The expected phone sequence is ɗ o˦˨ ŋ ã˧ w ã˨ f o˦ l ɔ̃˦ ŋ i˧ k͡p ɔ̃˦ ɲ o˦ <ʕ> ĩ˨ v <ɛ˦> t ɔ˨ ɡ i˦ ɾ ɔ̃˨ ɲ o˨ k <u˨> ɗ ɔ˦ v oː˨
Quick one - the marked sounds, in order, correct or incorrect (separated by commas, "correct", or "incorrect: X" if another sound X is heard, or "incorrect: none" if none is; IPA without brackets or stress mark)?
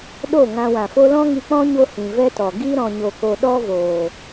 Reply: incorrect: h, correct, incorrect: o˨